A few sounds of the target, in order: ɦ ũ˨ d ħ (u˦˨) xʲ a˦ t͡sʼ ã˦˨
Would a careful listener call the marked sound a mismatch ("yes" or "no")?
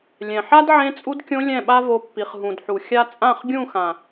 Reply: yes